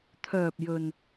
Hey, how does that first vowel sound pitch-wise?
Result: low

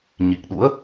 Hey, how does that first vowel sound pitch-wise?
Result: low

